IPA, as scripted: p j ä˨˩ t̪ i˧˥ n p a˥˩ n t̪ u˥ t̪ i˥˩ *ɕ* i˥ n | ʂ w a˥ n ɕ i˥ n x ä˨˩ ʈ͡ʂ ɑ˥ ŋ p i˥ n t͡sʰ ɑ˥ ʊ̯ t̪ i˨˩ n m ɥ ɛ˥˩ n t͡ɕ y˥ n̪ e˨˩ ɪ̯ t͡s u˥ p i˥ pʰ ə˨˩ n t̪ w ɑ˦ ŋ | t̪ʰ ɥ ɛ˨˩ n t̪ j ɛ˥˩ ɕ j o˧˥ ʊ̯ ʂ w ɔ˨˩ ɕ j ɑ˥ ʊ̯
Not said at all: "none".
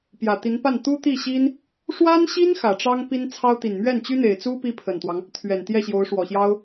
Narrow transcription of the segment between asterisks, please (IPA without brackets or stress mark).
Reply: ɕ